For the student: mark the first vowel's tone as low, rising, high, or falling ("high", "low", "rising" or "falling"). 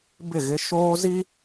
falling